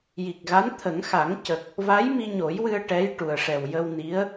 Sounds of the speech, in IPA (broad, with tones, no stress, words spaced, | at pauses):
ji˨˩k̚ɣa˧˥n t̪ʰə˨˩˦ŋxa˨˩˦ŋcə˨˩k̚ | va˧˥jmi˧ɲo˨˩˦jwɨ˧ə̯ ʈɛ˧˥jʈu˨˩ə̯ ʂɛ˨˩wjə˧w ni˧˥ə̯